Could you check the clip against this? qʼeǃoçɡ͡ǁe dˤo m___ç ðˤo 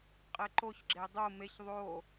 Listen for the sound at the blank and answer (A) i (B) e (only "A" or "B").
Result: B